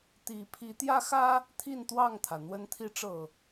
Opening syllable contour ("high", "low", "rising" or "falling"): rising